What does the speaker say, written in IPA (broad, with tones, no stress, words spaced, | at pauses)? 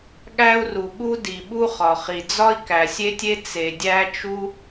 ɠæ˥u̯ru˩ ɠu˥di˩ɓu˥ χɒ˩χi˩d͡zɒ˥i̯ kæ˩sʲe˥tʲe˥ t͡se˩dʲæ˥t͡ʃu˥